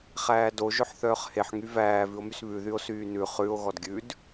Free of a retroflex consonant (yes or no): yes